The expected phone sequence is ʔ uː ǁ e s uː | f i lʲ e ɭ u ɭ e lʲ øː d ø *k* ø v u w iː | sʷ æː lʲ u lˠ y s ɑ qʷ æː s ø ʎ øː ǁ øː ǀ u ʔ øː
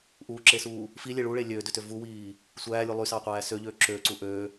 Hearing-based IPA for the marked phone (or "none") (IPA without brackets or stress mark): t